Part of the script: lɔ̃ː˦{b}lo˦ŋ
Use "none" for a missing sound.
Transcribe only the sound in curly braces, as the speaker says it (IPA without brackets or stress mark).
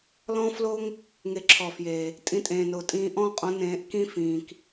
f